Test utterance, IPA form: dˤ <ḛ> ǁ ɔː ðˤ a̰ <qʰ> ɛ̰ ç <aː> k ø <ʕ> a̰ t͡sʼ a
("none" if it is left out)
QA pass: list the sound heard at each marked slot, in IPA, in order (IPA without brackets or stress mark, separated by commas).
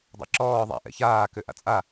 ɛ̰, ʔ, aː, ʔ